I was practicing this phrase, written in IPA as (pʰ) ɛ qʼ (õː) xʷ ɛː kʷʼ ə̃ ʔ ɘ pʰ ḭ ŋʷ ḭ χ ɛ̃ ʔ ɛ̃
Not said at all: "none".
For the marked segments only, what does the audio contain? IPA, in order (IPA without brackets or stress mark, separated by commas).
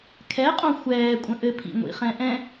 kʰ, õ